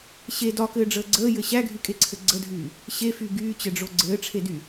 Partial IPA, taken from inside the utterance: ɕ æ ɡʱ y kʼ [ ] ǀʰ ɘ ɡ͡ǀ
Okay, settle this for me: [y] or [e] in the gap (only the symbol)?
e